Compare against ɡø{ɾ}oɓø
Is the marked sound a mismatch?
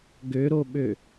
no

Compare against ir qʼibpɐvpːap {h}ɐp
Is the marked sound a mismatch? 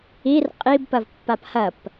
no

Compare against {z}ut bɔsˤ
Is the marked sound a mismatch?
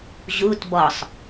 yes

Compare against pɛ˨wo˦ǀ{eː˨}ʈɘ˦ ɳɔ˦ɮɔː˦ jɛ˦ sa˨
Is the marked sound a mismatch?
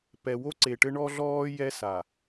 yes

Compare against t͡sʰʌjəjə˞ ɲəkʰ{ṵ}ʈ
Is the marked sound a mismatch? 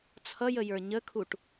yes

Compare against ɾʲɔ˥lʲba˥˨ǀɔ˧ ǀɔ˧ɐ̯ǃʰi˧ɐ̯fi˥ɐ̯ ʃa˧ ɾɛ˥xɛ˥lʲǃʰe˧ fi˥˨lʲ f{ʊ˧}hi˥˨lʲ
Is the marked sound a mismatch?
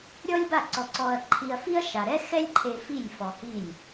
yes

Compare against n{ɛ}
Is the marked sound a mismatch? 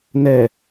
no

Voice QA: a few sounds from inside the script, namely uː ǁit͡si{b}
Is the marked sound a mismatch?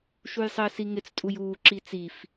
yes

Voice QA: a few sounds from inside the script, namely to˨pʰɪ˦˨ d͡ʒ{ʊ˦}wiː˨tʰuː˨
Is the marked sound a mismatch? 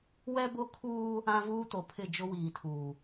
no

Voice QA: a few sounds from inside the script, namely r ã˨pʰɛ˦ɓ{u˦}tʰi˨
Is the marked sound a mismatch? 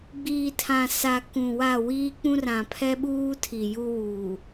yes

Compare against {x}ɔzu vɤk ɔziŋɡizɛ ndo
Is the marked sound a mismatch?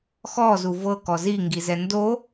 no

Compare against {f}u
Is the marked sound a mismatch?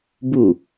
yes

